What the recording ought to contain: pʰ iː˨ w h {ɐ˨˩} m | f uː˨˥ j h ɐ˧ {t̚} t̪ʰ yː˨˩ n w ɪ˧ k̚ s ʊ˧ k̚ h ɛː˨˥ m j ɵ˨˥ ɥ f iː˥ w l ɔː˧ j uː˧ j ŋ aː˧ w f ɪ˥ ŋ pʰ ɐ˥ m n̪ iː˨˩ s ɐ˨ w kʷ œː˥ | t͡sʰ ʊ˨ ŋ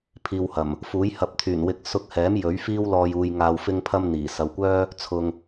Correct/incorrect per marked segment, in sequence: correct, incorrect

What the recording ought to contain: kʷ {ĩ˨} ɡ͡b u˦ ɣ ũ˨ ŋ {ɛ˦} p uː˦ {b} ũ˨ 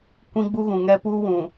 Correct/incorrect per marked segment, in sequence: incorrect, correct, incorrect

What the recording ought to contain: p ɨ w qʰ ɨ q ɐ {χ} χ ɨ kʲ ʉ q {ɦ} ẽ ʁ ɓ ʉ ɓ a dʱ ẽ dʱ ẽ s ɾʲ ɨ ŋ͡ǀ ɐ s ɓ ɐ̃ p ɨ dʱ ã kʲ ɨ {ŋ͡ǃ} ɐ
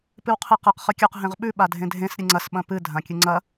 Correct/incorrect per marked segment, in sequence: incorrect, correct, incorrect

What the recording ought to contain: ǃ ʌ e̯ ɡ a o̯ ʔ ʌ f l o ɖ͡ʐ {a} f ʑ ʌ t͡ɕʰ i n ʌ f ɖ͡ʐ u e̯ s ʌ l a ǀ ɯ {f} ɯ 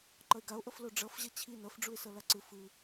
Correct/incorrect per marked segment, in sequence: incorrect, correct

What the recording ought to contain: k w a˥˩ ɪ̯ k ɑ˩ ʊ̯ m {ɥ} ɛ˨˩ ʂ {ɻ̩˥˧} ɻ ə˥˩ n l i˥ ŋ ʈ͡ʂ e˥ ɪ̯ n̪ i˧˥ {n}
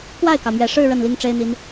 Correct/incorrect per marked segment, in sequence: correct, correct, correct

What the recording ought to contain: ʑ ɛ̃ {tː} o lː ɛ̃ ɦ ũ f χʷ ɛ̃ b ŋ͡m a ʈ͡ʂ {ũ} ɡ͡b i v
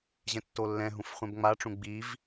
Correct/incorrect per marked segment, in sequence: correct, correct

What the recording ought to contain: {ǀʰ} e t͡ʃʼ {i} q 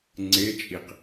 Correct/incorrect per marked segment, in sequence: incorrect, correct

